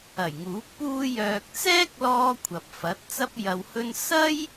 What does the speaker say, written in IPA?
ɐ˨˩ j ŋ uː˨˥ k̚ p uː˥ j œː˧ k̚ t͡s ɛː˥ k̚ l ɔː˧ kʷʰ ɐ˨ p̚ f ɐ˨˥ t̚ t͡s ɐ˥ p̚ j ɐ˧ w h ɵ˥ n s ɐ˥ j

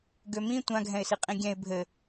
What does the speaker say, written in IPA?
ɡ ø m ĩ tʷ ã ɡʱ ɛ̃ ɪ̯ s i qʼ ĩ ɡʲ ɛ̃ ɪ̯ bʱ ɘ

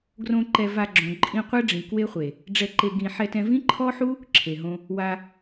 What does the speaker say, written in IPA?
ɡ r õ˧ ǃ ɛ˧ v a˧ ɡ͡ǁ õ˨ ǃʼ ĩ˧ qʷ ɛ˦ ɖ͡ʐ ĩ˨ k w e˦ χʷ e˨ | ɖ͡ʐ ɛ˧ ǃ e˧ ɡ ĩ˧ ħ ɛ˧ t ɛ̃˧ v ĩ˦ ǃʰ ɔ˦ ħ u˦ | ǁʰ e˨ ɦ õ˧ | w a˧

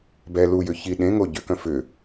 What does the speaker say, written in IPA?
b ɛ l u j ʏ ç i ɗ ẽ ŋ o ɟ ʏ k œ̃ f ʏ

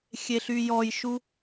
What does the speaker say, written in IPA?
xʲ e ɬ y j ɔ j ʃ u

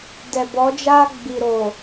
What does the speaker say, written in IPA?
d ɛ˨ b ɔ˨˦ d͡ʒ aː˦ ɡ͡b i˨ ɾ o˨

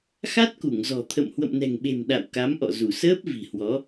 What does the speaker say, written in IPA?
x a˦˥ t̚ k u˧˩ ŋ z ɔ̤˨˩ t̪ʰ ə̰˧˨ m h w ə̰˧˨ m n ɛ̤˨˩ ŋ ɓ e̤˨˩ m ɗ a̰˧˨ w k a˨˦ m ʔ ɔ̰˧˨ z u˧˩ s əː˦˥ p̚ v i̤˨˩ h w ɔ˨˦

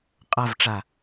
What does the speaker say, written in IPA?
qʼ a v ʈ͡ʂ a

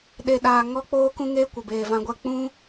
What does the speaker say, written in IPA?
ɗ e˧ ɗ aː˧ ŋ ɔ˦ k͡p oː˦ k ũ˦ ŋ eː˦ kʷ ə˨ b eː˨ v ã˧ ɡʷ ɛ˧ k͡p ũ˦

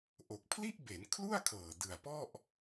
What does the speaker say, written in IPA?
ʔ o˨˩ k̚ pʰ l i˥˩ ʔ b e˩˦ n kʰ l u˥˩ a̯ kʰ ɤː˨˩ d ɯ˨˩ a̯ p ɔ˥˩ ʔ

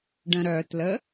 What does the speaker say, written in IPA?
ɖ ə̃ ɾ œ t l ə

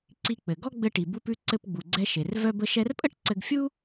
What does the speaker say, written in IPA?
ǀ i˧ k͡p ɘ˩ ɡ ɔ˥ ɡ͡b ɘ˧ ʈ i˩ b u˧ p ʉ˧ ǀ ɘ˧ p ɡ͡b u˩ ɡ͡ǀ ɛ˧ ʃ e˩ r v œ˧ b ə˧ ʃ ɛ˧ r pʼ ə˥ ʈ ǀ ɘ˧ ɡ fʲ u˥

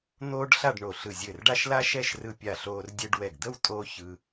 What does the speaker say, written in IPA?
n̪ oː˥ ɖ ɬ a˥˧ ɖ ɳ o˧˩ ɬ ɯ˧˩ zʲ ɘ˧˩ r ɖ a˥˧ ʃ l a˥ ʃ ɛ˥˧ ʃ r ɯ˧ pʲ a˧˩ ɬ oː˧ r dʲ ɘ˧ ɖ w ɛ˧˩ ɡ d̪ ə˥˧ w tʼ oː˥ ç ɯ˧

